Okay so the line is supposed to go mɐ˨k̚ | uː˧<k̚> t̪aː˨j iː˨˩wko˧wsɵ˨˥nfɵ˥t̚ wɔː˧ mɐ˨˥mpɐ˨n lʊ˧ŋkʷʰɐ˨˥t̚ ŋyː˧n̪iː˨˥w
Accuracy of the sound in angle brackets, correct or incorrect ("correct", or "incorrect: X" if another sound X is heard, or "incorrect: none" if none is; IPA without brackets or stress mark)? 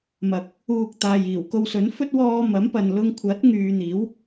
correct